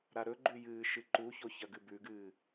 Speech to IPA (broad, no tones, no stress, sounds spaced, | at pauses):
ɾ a ɾ ɵ ɡ͡ǃ ʉ j ɨː ʃ ɨ ǃ u ç o ç ɐ ɡ ɨ b ʉ ɡ ɨː